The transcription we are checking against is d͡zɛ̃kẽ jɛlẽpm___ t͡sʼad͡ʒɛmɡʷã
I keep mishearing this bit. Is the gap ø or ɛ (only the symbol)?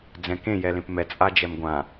ɛ